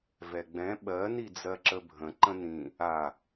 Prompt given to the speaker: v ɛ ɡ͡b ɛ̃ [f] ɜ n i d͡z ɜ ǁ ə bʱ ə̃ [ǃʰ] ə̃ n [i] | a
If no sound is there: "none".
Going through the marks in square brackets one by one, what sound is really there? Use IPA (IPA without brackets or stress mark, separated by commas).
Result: ɓ, ǃ, ĩ